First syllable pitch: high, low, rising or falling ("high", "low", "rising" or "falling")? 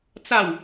falling